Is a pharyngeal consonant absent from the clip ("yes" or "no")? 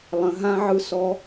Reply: no